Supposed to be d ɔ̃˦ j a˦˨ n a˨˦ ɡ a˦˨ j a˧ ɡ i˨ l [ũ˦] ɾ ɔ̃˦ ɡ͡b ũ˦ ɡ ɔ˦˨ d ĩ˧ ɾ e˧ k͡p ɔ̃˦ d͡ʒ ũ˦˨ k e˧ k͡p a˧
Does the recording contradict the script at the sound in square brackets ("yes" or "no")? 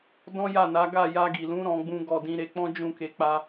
yes